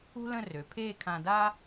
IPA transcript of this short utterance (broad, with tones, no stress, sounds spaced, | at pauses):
ṳ˥ l ə̃˥˧ r ø˩˧ pʰ eː˥˧ kʰ ã˧ d aː˥